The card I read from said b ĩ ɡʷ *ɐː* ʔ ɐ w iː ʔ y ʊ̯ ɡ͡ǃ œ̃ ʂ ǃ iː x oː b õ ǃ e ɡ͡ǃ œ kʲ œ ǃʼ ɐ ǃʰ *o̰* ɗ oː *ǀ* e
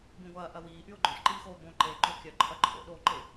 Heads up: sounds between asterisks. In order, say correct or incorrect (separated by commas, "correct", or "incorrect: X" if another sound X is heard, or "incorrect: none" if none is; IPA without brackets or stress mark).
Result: correct, correct, incorrect: ǃ